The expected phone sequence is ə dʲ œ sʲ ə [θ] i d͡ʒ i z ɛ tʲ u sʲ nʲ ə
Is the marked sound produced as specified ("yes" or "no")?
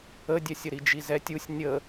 no